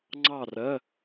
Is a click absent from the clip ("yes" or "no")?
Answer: no